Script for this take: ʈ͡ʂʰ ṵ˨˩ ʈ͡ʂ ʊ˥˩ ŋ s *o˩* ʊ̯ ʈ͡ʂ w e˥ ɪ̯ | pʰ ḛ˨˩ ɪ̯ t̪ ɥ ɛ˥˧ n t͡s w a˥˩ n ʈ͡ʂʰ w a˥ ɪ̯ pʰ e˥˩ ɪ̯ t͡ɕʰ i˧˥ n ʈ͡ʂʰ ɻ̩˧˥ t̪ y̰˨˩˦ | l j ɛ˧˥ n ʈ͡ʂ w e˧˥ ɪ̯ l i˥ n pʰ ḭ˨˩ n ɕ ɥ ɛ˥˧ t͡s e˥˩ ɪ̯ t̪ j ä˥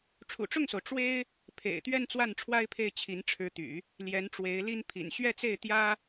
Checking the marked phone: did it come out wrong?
no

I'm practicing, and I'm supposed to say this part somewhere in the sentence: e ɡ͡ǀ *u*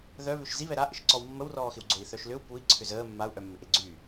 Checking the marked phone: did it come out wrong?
yes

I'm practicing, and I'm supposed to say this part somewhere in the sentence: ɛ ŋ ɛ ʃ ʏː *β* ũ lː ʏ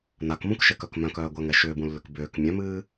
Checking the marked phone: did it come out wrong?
yes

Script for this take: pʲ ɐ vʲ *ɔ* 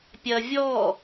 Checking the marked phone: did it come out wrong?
no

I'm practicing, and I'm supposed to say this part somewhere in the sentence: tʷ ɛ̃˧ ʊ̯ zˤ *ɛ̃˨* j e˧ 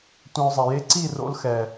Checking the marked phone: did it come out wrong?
yes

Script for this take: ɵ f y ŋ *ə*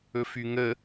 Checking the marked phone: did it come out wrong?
no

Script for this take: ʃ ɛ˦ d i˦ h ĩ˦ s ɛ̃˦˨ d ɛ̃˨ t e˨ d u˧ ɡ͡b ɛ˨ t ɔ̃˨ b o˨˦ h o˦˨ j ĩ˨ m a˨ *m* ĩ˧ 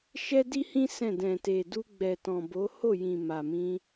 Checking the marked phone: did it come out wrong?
no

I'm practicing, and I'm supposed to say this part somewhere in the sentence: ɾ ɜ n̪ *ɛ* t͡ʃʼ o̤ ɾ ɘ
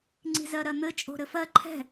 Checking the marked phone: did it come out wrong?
yes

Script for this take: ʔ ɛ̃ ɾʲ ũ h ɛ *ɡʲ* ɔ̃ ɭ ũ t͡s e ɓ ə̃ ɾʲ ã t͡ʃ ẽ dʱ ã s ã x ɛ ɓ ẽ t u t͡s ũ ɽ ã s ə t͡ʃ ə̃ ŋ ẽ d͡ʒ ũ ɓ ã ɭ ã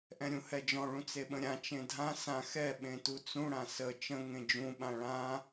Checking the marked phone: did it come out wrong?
yes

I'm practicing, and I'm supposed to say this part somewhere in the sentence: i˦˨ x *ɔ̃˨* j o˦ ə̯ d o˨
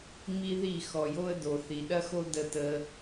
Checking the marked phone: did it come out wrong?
yes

